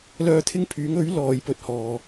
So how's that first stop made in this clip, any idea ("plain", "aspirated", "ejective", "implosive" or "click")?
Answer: aspirated